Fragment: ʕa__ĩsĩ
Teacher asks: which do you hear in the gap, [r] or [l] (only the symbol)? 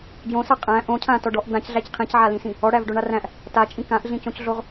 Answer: l